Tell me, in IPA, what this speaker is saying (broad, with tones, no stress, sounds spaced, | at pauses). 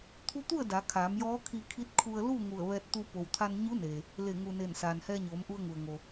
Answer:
t̪ʰ u˧˥ t̪ u˥˨ ə̯ d a˩˧ kʰ aː˩˧ m j ɔː˧˥ kʰ i˧ kʰ i˧˥ t̚ kʰ u˧ ə̯ l u˥˨ ŋ u˧˩ ə̯ ʋ ɛː˧ t̚ t̪ u˧ p o˩ w t̪ʰ a˧ n ɲ u˧˥ n eː˩ | l e˧˩ ŋ u˩ n eː˧˩ n s aː˩ n h ɛː˧ ɲ oː˩˧ m ʔ u˧ ə̯ ŋ u˩ ə̯ ŋ o˩